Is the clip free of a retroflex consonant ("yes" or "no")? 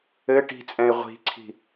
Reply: no